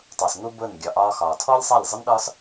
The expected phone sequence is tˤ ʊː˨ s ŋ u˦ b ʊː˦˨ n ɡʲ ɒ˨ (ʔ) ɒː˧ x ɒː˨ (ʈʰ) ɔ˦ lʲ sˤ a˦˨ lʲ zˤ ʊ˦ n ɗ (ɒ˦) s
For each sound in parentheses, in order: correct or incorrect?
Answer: correct, incorrect: tʰ, incorrect: ɒː˦

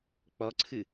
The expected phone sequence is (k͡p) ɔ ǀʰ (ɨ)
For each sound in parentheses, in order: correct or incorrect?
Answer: correct, correct

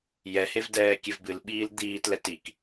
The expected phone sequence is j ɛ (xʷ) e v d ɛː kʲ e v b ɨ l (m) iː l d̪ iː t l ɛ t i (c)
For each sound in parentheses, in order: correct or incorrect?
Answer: incorrect: h, incorrect: ɓ, incorrect: k

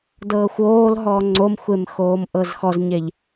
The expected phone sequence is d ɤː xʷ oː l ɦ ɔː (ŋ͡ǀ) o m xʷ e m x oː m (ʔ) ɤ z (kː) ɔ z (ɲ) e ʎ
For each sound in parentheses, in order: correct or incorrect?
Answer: correct, correct, incorrect: x, correct

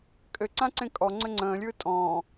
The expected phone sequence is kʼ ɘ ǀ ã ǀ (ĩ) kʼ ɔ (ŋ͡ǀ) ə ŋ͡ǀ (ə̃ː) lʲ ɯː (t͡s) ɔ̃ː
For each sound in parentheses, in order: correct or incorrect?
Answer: incorrect: ẽ, correct, correct, incorrect: tʼ

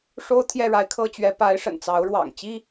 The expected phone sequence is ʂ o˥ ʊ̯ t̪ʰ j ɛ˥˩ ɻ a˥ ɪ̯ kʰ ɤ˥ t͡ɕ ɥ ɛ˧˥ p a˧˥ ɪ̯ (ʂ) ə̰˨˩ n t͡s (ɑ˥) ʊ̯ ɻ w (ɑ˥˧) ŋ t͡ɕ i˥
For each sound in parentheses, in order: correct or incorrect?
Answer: correct, incorrect: ɑ˧˥, incorrect: ɑ̰˨˩

